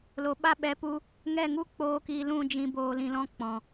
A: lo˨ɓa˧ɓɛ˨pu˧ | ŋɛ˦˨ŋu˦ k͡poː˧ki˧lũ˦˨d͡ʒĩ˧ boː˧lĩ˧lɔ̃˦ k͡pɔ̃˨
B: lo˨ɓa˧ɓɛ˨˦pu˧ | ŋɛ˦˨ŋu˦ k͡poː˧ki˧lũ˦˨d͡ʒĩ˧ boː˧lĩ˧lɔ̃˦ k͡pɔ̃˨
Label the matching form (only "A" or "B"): B